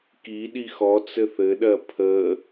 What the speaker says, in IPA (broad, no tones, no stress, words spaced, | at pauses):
kiɗi xɔt͡sɘ θɘɗɜ pʰə